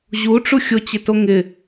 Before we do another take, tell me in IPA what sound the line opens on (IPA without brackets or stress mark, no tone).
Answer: ʑ